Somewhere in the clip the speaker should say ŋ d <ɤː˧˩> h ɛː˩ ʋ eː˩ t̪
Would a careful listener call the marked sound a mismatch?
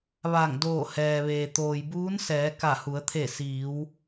yes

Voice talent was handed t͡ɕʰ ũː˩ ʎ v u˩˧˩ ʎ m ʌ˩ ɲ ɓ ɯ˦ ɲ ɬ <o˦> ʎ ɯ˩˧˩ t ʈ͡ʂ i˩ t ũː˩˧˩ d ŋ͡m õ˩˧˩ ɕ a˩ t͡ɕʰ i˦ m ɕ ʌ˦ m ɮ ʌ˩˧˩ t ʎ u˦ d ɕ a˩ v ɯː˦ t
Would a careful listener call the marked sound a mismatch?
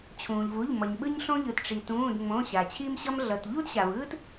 yes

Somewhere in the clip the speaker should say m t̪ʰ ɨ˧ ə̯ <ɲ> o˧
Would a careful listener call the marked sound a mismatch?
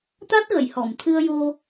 yes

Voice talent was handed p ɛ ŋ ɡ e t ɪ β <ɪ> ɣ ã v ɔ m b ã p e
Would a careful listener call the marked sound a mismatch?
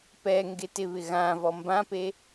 no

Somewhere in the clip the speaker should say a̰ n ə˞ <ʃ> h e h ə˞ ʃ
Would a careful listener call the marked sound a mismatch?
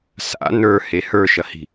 yes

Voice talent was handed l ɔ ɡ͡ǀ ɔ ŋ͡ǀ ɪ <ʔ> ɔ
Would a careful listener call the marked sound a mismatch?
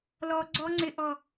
no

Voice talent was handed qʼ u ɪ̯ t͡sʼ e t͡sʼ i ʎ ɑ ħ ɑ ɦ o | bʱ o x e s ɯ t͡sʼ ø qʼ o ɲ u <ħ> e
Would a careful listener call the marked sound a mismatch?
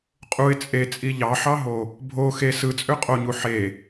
no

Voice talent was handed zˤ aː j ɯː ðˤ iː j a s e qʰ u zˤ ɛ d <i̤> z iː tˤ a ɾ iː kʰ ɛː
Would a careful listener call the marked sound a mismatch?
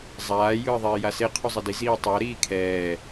yes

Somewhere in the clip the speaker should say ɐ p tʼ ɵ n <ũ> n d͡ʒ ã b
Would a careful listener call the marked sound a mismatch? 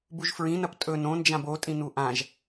yes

